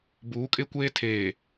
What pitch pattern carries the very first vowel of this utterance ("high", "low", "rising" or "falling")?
rising